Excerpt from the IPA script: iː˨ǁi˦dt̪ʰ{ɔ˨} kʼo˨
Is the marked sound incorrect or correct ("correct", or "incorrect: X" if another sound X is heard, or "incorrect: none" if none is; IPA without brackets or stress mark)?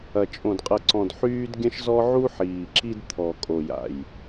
correct